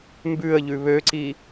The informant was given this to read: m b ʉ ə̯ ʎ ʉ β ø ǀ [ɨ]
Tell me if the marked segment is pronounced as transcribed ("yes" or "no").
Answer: no